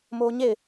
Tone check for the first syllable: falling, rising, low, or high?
high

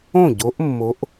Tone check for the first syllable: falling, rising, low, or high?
falling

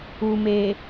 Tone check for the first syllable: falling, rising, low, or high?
low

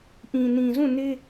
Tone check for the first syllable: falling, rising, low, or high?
low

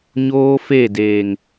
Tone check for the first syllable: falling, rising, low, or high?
high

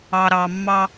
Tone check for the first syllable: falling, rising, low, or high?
low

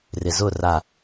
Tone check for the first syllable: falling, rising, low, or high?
low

